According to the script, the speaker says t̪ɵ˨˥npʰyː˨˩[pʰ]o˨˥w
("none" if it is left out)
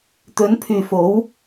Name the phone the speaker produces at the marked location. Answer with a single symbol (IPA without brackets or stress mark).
f